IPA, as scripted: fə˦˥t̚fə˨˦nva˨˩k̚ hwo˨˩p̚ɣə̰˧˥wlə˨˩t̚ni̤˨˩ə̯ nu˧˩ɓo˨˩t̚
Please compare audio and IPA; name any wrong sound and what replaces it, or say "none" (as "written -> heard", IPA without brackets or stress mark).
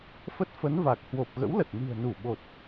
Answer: none